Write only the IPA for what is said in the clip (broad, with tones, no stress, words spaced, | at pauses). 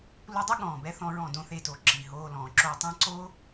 lu˧dˤu˦ ɠɔ̃ː˨bɛ˦ θɔ̃˧ ɹɔ̃˦˨dõ˦θe˧to˨ ǁi˨ɦoː˧lɔ̃ː˨ ǁo˧tˤɛ̃˦ ǀo˦